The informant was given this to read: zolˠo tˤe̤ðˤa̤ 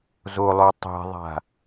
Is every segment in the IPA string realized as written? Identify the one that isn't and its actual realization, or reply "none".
none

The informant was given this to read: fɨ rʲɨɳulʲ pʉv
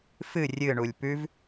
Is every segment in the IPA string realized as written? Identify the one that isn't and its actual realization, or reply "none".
none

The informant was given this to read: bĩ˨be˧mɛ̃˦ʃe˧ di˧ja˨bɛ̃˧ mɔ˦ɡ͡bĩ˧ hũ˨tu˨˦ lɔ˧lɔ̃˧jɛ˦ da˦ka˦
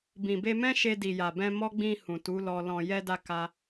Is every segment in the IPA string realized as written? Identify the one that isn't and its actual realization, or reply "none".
i˧ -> i˨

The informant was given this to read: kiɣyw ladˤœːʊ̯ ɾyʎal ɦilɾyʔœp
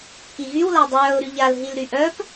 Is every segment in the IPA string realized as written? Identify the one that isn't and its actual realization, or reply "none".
none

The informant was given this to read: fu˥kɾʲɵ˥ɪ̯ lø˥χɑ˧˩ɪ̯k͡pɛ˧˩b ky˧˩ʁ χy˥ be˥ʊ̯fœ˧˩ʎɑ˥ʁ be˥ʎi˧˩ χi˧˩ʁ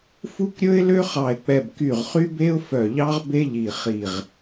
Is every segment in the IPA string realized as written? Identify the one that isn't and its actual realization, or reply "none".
none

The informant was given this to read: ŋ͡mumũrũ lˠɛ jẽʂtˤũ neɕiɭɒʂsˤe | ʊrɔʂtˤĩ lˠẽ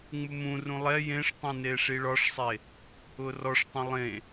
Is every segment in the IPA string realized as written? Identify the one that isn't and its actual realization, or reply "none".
ɕ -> ʂ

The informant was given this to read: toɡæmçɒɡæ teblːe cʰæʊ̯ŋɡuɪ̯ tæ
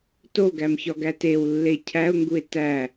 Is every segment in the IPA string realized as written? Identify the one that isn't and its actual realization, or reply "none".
b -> w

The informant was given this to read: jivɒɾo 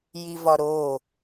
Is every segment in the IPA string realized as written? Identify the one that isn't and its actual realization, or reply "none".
none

